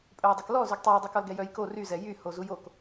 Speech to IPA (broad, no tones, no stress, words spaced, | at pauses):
pʼœjdˤɛklɔzyɡ tˤɛjdˤy kɔlɡɛjœjko ryzɛ jy hozujok